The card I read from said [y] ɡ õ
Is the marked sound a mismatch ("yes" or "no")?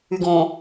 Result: no